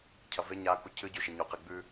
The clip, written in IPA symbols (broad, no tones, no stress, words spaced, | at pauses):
cʰɐve ɲa kucʰɨ ɟʉʃeɲo qeɡ͡bʉ